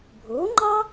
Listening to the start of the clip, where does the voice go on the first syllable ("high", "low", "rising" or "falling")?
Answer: rising